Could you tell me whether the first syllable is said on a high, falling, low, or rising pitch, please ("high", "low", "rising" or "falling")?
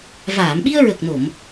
low